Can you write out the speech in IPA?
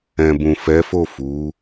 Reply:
ɛ̃˨bũ˨fɛ˨˦fo˦˨ fu˨˦

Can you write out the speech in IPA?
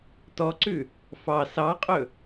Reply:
tɔǀʉ | fɑ sɑqʼɵ

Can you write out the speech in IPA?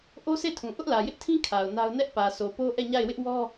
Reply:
ʔo˦se˦˨tʰũ˨ ʔʊ˦ʔlä˨jɪ˦ʔtʰĩ˦ kʰa˨ʊ̯ na˦ʊ̯ nɛ˦ʔpä˨ so˨po˦ ʔɛ˦˨ɲa˦˨ɪ̯wɪ˦ʔwɔ˦

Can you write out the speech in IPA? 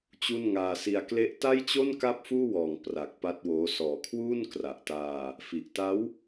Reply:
t͡ɕu˥˩n ŋaː˧si˧a̯ kle˦˥ʔ ta˥˩jt͡ɕo˥˩n ka˥˩p̚fuː˥˩wɔː˨˩ŋ pra˨˩k̚ pa˦˥t̚woː˦˥ sɔː˨˩kʰwuː˥˩n kra˨˩ʔtaː˧ | fi˨˩ʔta˦˥w

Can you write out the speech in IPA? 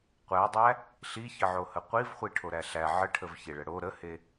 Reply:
qʷædˤæ | ɬiçəʕohə qʷivχʷiʈʰoɾæ ɬæ ʕəʈʰəvçeɭə ɽo ɾəhe

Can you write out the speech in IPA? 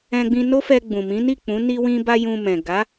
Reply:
ɛ̃˧ɡ͡bĩ˧no˦fɛ˧ ɡ͡bũ˨mĩ˨˦ni˦˨k͡pũ˨˦ ni˧wĩ˧ba˧ jũ˧ mɛ̃˨ɡa˨˦

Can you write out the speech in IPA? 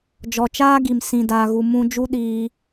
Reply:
d͡ʒɔ˨t͡ʃaː˦ ɡi˨msĩ˨ daː˨ɣu˨ mũ˧ d͡ʒu˦ ɗiː˧

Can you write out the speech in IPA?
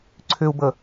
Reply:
ǀʰʏu̯bə

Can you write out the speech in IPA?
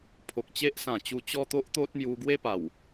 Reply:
pʰo˨k̚t͡ɕe˦ʔsã˨˩t͡ɕu˧ t͡ɕɔ˦t̪o˦ʔ t̪o˦t̚ mju˧ɡwe˦pa˨˩w

